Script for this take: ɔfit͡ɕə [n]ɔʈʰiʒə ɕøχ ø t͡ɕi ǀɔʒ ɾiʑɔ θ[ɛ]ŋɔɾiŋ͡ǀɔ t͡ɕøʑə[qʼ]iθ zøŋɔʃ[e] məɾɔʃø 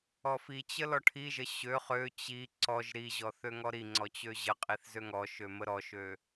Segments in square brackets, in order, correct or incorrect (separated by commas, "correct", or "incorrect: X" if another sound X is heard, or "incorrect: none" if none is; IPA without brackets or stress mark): incorrect: l, incorrect: ø, correct, incorrect: ø